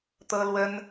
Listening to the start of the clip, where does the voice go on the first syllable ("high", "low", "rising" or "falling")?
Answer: high